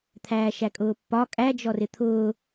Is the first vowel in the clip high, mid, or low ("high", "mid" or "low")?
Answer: low